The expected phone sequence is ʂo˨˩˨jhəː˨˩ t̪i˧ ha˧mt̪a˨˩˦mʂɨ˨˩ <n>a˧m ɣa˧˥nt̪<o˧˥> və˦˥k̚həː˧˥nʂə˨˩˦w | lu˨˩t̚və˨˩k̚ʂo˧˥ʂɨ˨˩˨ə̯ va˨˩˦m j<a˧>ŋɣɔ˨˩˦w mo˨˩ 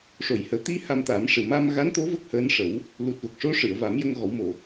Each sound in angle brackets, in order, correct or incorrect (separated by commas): incorrect, correct, incorrect